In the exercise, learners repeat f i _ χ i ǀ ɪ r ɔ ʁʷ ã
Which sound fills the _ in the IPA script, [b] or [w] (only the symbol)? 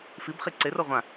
b